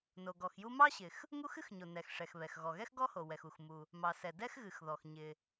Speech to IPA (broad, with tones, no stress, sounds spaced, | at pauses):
n o˩ ɡ ɔ˩ x j u˥ m ɑ˥ ɕ ɪ˩ x | ŋ u˥ x ɨ˥ x ɲ o˩ n ɛ˩ x ʂ ɛ˩ x β ɛ˩ x ɣ ɔ˩ ɣ ɛ˥ x ɡ ɔ˥ h o˩ w ɛ˩ x u˩ x m u˩ | m ɑ˩ s ɛ˩ d ɛ˥ x ɣ ɨ˩ x ð ɔ˩ x ɲ ɪ˩